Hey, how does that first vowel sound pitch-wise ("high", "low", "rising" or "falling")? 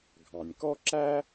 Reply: low